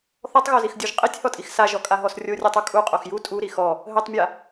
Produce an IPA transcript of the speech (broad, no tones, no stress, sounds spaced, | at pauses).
θ ɔ tˤ ɣ o z i x dʲ o ʒ qʼ i tʲ h ɔ tʼ i x s a ʒ ɔ kʼ a ɦ ɔ s rʲ o rʲ ɔ tˤ u kʼ u qʼ o x j u tʼ u ɾ i x ɔ | ɦ ɘ tˤ mʲ a